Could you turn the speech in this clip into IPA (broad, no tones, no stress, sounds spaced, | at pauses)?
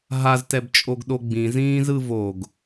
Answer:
ɦ a z t ɛ b t͡ʃʼ o ɡ ɗ o ɡ͡b ĩ z ĩː z ɯ v o ɡ